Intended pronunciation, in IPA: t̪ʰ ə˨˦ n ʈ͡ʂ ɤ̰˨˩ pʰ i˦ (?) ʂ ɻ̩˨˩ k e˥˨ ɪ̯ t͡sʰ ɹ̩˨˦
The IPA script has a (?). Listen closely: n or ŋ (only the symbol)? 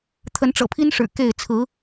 n